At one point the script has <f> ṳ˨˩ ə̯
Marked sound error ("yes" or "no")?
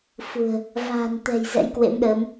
no